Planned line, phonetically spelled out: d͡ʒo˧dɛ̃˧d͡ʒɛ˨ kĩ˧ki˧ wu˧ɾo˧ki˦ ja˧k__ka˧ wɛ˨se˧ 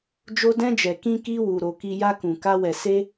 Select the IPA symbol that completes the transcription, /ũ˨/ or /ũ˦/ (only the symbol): ũ˨